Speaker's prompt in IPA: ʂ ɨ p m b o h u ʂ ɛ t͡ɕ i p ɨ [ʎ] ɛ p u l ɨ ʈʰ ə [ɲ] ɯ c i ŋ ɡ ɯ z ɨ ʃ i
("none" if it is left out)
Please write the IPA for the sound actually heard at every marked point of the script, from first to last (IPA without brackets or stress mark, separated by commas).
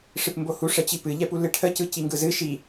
ʎ, c